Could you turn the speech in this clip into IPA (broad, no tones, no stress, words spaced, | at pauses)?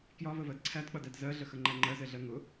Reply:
kjɒvəvɜd ǀʰædk͡pʌdæd zɜɮəxəŋ͡ǃæ ŋ͡ǃɜzɛɮɜ ŋʊ